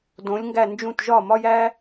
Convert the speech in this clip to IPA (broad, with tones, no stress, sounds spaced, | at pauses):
d õ˩˧ lʲ ŋ ɡ æ˧˩ n d͡ʒ ũ˧˩ t ʒ ɒ˧˩ m ɒ˧ j æ˧